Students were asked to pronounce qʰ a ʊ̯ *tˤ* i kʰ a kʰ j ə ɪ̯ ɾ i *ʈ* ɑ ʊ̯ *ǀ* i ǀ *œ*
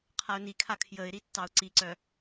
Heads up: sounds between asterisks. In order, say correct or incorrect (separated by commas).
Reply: incorrect, incorrect, correct, correct